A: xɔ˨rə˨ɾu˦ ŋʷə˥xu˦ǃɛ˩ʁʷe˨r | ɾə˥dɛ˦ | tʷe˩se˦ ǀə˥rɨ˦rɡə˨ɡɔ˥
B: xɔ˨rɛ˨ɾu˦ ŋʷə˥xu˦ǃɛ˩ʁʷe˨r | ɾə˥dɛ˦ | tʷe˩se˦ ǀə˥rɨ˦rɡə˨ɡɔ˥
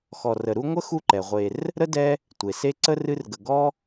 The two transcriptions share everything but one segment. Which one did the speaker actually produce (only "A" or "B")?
A